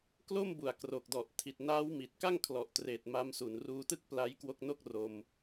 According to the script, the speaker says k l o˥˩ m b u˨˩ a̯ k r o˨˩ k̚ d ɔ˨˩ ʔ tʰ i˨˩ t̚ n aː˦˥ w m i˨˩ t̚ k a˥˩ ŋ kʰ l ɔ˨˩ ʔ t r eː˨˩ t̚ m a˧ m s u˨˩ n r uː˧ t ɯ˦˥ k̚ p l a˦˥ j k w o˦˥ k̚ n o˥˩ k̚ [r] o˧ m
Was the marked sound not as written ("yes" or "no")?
no